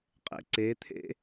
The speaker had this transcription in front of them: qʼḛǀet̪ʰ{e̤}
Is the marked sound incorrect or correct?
incorrect: ḛ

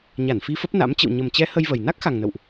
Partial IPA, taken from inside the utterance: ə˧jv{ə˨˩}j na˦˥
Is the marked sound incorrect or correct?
correct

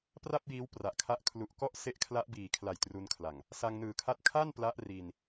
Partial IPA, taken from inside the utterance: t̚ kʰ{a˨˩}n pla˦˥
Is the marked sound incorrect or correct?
incorrect: a˥˩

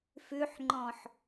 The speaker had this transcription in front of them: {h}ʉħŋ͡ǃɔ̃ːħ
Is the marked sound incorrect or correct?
incorrect: f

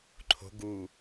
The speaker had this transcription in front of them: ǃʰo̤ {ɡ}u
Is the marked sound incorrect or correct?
correct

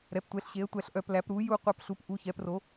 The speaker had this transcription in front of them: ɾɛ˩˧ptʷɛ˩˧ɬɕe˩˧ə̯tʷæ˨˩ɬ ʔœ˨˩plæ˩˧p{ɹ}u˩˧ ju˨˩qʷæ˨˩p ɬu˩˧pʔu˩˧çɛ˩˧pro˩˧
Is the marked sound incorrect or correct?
incorrect: ɾ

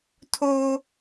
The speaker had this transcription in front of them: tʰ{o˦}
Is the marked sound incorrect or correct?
correct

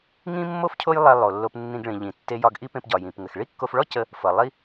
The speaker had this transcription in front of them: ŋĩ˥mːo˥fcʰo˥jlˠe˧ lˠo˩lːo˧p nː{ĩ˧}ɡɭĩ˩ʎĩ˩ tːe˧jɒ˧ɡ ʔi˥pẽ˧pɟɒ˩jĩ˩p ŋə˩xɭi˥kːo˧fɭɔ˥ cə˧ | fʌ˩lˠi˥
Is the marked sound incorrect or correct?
correct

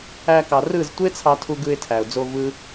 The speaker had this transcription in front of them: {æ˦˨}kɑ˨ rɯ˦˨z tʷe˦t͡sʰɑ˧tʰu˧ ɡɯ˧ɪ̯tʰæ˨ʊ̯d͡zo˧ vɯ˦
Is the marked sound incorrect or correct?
incorrect: æ˧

